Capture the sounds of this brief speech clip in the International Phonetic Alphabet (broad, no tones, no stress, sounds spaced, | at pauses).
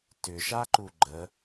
t ʏ ʃ a ǃ u ɡ͡ǃ ə